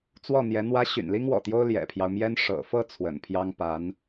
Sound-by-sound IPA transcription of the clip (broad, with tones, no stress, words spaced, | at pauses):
t͡swɔ˥˩n̪jɛ˧˥ n̪wä˧˥ ɕy̰˨˩nli˥ŋwɔ̰˨˩t̪jo˥ʊ̯ ljɛ̰˨˩pʰjɑ˦ʊ̯mjɛ˥n ʂɤ̰˨˩fɤ˥˩ t͡sʰwə̰˨˩npʰjɑ˥ŋ pa˧˥n